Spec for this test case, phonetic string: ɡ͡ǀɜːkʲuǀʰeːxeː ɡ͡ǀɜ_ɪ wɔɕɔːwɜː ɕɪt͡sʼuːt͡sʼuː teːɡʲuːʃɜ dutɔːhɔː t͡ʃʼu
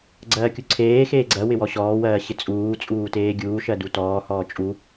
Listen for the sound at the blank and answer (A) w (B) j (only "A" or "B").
A